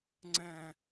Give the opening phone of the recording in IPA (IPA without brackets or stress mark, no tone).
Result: ŋ͡ǀ